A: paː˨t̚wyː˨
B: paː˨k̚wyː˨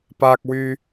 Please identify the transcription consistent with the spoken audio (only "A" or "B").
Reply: B